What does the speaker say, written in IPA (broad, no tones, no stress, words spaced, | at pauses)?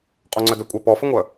qʼoŋ͡ǀœdœkʷʼœ pɔfəŋʷœ